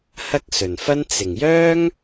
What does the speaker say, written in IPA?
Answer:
h ɐ˥ k̚ s ɵ˨˩ n f ɐ˥ n t͡s ɪ˨˩ ŋ j œː˥ ŋ

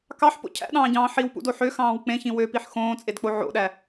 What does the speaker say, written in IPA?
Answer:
k ɑ ħ p o̰ cʰ æ̰ ɗ ɑ̃ː ɟ ɑ̃ː ħ i w p ṵ d o ħ ø x ɑ̃ː w k͡p ẽ ç ĩ w ø p i ħ x õː t͡sʼ e d k͡p o ʕ o̰ ɗ æ

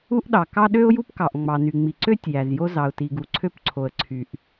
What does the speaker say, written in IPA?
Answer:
u˥ ʔ ɗ ɑ˩ k ɑ˥ ɗ ø˥ ʊ̯ j u˥ p k ɑ˩ ʔ ŋ͡m ɑ˩ n y˩ ŋ͡m i˩ ǀ ø˥ tʲ j æ˩ z j o˥ z ɑ˩ ʊ̯ t i˩ ɡ u˩ ǀʰ ø˥ p ǀʰ o˩ ə̯ ǀʰ y˩ ʔ

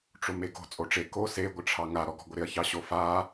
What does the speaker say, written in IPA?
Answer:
ʈ͡ʂ o m e ɡ o̤ t͡sʼ o ʈ͡ʂ e k o s e ɡʷ ɪ ʈ͡ʂʰ ɑ ŋ a ɾ ɔ ɡ ɔ̤ ɡʷ ɪ ɾ ɪ ɐ̯ ç ɑ ɕ o f a

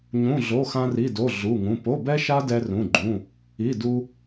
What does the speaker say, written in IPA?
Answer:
ɲ ũ˧˥˧ ɮ o˧˥˧ x ã˥ r i˧˥˧ d o˧˥˧ ɮ u˧˥˧ ŋ ũ˧˥˧ p o˧˥˧ b ɛ˥ ʃ a˥ d ɛ˥ r ũ˧˥˧ ɡ͡ǃ ũ˧˥˧ | i˧˥˧ d u˥

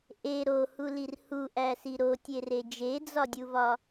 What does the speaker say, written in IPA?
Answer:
ʔ e ɾ o h u l i r h u ʔ æ s i ɾ o tʲ e r e d͡ʒ e d͡z ɒ dʲ u v ɒ

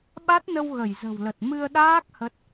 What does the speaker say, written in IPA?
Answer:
ɓ a˦˥ t̚ n ə˧ w ɣ ə˧˩ j z ə̤˨˩ w l ə˨˩ t̚ m ɨ˧ ə̯ ɗ aː˦˥ k̚ h ə˦˥ t̚

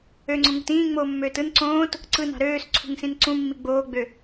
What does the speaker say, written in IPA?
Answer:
ø ŋ͡ǀ õ ŋ ṳ t ĩː ŋ͡m oː mː øː t ɯ n ǀ õː t | ǀ ɯ n ɑ̤ ɾ øː s ǀʰ ṳ ŋ s ĩ n ǀ ũ mː i ɡ͡b oː ɡ͡b ø

